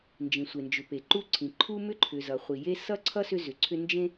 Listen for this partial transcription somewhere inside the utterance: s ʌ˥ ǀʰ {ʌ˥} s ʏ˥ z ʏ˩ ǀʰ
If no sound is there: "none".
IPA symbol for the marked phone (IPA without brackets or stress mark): ʌ˥